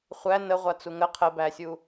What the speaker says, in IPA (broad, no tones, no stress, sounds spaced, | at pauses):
χʷ æ n ə ʁʷ a t͡s u ŋ ə qʰ ə b æ sʲ u